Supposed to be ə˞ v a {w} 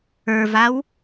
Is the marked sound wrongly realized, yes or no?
no